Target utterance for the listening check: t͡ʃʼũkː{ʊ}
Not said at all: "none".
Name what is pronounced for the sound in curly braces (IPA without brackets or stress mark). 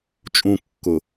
ʊ